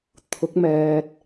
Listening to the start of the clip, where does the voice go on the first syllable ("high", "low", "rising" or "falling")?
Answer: rising